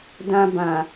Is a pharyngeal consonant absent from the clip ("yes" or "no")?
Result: yes